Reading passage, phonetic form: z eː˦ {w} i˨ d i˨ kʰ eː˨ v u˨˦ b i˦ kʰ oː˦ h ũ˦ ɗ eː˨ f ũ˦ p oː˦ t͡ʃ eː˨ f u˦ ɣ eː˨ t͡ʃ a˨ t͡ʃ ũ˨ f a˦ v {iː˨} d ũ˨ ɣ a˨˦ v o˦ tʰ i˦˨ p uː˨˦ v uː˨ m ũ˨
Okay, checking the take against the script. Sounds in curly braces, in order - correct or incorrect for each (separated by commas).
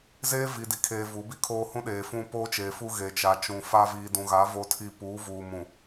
incorrect, correct